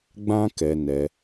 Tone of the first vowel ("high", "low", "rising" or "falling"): high